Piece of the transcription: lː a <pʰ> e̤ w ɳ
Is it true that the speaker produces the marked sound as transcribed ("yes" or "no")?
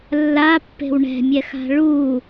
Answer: no